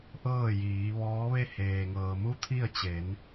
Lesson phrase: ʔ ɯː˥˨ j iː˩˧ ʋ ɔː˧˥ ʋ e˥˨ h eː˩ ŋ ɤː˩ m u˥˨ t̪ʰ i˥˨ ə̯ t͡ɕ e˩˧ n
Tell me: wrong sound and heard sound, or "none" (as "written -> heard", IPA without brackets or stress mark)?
ɯː˥˨ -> ɤː˥˨